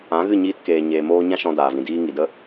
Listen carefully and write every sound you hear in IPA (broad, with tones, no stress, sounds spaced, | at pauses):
ã˨˦ ɣ ɨ˦˨ ɲ iː˧ t k eː˨ ɲ eː˨ m oː˦ ɲ ã˦ ʃ ɔ̃˧ d aː˨ v ĩ˨ d iː˧ ŋ i˨ d ə˦